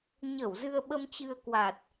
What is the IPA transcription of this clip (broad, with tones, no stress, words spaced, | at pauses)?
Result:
ɲə˧˩w zɨ˧ə̯ɓə˧mt͡ɕɨ˧ə̯ kwa˨˩t̚